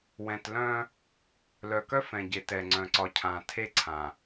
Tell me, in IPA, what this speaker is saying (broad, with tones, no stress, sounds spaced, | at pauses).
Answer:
w ɛ̃˨ t l œ̃˦ | l œ˨ k œ˦ f ɛ̃˨ ɟ e˨ t ɛ˨ ŋ͡ǀ œ̃˨ ǀ ɒ˨ cʰ ã˨ tʰ e˦ ǀʰ ã˨